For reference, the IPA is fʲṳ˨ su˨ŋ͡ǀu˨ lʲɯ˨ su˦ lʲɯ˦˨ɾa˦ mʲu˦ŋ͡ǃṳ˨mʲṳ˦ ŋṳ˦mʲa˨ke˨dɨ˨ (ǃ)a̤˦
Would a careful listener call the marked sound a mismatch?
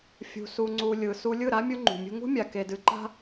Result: no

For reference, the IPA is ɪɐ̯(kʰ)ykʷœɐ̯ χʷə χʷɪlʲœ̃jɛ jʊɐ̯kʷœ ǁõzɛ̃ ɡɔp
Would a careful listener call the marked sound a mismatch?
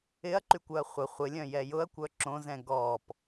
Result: yes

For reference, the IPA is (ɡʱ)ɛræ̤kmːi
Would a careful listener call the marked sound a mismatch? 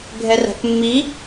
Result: no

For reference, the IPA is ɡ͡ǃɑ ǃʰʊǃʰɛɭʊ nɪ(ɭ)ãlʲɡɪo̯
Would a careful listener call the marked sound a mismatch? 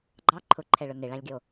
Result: no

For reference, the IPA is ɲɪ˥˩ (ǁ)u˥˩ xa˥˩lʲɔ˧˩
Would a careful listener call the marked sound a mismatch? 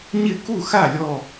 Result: yes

